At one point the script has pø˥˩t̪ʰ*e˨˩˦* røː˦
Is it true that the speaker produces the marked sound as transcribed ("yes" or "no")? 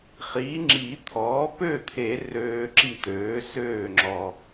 yes